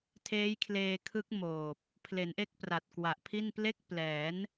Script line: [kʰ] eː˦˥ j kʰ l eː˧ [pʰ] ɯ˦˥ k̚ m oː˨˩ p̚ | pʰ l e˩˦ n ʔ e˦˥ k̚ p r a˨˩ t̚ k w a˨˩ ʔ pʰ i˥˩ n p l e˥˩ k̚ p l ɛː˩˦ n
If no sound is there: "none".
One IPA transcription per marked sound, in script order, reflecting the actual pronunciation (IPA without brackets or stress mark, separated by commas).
tʰ, kʰ